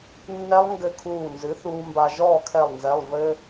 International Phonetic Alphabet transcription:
nːɛ˦˥lˠŋɡɘ˧˩ kʰuː˧˩nzɨ˩˥θuː˧mba˧ ʒɔː˥˨kʰɛ˧˩lˠnzɛ˩˧˩lˠ vɘ˧

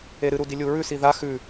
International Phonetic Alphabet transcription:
eɾɨɾudi lʲuɹʉ siða xʉ

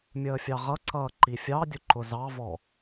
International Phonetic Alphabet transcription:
mʲəːfʲɑʁʌǀʌː ǃifʲɑdʲʊ ǃʊzɑvɔ

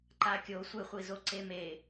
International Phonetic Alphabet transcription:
ǃakʲo sʷeχʷizoǀe me

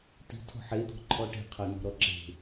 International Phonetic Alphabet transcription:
ti̤ tʰɔ̤ħed̪ɔ̤ ǃʰɔʈe̤ qʰɤnɔ̤ɾɔǁe̤

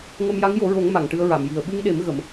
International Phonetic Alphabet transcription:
ŋə˧mja˧˥ŋjo˨˩˦ɹo˨˩˦ŋ ma˨˩˨ŋʈɨ˧ə̯ɹa˨˩˨mji˨˩ə̯ ɓɨ˧ŋɗe˨˩˦m ɣə˨˩˦m

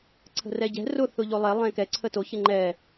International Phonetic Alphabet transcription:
ǀʰə̤rɛɟɛ̤ rʊ θʊʎolˠɛ lˠɛ̃kɛ ǀʰəto çɪŋ͡ǃɛ

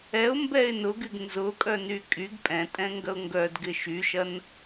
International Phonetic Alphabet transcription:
ɛʊ̯mbɛɪ̯ nʊɡyɡ nzʊkʼœny kʼyɡ pʼɛ̃tʼɛ̃ŋɡɐʊ̯ ŋɡœdɡɪ ʃyʃɐn

